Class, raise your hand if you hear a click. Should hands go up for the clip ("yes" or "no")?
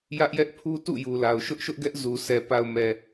no